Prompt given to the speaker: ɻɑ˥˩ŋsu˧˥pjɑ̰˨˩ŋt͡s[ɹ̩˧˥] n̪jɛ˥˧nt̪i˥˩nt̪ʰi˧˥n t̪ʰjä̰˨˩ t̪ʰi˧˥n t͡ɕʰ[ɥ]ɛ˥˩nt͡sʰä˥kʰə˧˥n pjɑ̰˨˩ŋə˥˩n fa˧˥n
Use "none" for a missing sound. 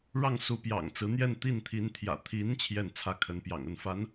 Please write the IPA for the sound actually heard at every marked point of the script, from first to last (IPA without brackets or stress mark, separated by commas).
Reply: ɹ̩˧˥, j